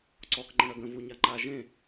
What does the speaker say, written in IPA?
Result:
ǀ ɔ k ŋ͡ǃ ə̃ ɽ œ ɡ ə̃ v u ɲ a ŋ͡ǃ a ʒ ẽ

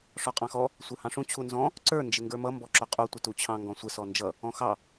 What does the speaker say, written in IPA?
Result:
ʂ ɔ qʼ ɑ̃ x ɔ | sʷ ə˞ h ɑ̃ ʂ ũ t͡ɕʰ u n z ɔ̃ | ǀ ə˞ n d͡ʒ ɪ ŋ ɡ ə˞ m ʌ m b ɔ ǁ ʊ qʼ u tʷ ɪ t u t͡ɕʰ ɑ̃ ŋ ɡ ɔ̃ sʷ ɪ s ɔ n d͡ʒ ʌ | ɔ̃ x ɑ

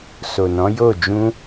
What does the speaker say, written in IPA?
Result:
s o˨ n ɔ̃˨˦ j o˦˨ d͡ʒ ũ˧

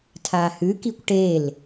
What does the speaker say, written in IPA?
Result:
tʰ aː h ʉ k i kʷ ʈ e l

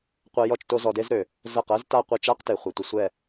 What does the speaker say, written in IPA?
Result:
qʷ ɜ˧ j ɔ˦˨ t͡ʃ t o˧ z ɔ˧ d e˦ z ɾ ø˨ | z ɜ˦˨ q ɜ˦ z t a˦˨ qʷ e˦˨ t͡ʃ a˦ q t e˨ χʷ e˨ tʷ ə˧ sʷ ɛ˦˨

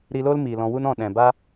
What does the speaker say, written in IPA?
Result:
ɾ iː˧ l oː˦ l m iː˨ l ɔ̃˧ w u˦ n ɔ̃˦˨ ɗ ɛ̃˨ b a˦

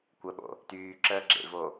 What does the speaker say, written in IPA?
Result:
kʷ ə ɓ o̰ | t yː ǁ əː ɡ͡ǁ ḛ v o

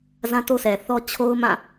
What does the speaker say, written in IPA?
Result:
z ã˦ t o˦ sʰ ɛ˨ θ ɔ˦ t͡ɕʰ o˦ ʊ̯ m ã˦˨

